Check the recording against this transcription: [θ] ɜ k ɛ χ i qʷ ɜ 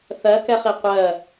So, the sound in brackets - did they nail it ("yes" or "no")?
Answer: yes